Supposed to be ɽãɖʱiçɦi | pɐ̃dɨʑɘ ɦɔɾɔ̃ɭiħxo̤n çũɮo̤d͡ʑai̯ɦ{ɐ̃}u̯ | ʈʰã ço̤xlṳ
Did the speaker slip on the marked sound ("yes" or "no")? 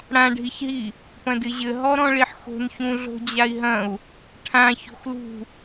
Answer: no